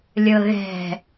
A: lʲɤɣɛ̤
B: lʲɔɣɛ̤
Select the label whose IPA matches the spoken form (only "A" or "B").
A